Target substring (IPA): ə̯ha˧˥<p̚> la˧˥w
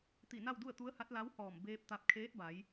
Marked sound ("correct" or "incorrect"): incorrect